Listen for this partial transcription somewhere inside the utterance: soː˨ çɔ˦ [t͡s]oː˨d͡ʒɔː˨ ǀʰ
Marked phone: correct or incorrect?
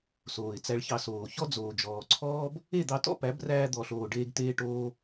incorrect